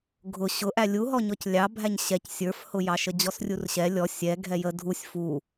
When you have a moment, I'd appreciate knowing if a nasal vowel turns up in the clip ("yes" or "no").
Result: no